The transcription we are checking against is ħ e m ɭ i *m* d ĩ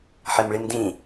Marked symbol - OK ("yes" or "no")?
yes